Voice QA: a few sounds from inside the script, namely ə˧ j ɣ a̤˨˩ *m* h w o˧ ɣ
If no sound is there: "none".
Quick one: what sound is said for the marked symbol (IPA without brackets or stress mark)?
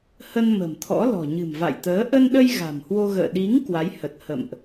m